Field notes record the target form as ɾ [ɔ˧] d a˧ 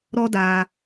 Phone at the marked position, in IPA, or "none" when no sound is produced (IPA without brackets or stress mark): ɔ˧